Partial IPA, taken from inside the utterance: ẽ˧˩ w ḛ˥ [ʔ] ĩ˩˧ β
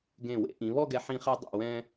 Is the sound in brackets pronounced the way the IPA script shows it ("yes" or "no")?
yes